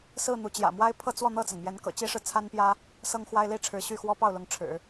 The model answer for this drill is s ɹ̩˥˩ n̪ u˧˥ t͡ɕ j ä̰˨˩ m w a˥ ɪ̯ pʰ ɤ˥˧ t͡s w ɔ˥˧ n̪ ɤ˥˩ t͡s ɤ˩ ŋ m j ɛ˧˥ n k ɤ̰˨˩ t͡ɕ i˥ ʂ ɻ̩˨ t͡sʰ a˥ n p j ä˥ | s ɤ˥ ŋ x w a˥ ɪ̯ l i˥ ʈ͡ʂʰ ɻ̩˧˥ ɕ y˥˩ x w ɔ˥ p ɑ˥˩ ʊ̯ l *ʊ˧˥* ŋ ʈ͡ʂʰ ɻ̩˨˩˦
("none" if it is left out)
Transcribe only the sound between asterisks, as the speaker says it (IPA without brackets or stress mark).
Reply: ʊ˧˥